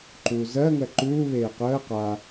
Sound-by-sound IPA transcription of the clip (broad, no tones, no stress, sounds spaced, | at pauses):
ǃ uː z ɜ ŋ ɜ ǃ uː β eː q əː q a